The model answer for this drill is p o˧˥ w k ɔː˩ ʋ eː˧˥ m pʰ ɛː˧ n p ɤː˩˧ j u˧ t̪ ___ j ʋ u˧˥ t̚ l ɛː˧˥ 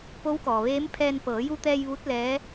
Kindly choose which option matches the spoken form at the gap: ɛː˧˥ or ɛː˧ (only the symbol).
ɛː˧